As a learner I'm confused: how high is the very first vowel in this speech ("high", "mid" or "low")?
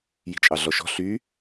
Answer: high